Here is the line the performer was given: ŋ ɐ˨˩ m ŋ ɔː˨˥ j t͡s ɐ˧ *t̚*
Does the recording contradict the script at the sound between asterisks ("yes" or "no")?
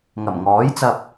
yes